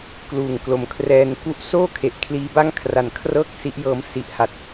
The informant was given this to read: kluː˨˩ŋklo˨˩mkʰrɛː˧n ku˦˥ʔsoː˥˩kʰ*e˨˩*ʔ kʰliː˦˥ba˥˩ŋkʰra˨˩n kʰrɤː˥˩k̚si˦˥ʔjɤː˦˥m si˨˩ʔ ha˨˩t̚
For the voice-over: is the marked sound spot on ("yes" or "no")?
yes